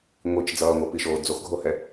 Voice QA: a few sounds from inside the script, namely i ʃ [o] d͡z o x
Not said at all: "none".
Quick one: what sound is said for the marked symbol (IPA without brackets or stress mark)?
oː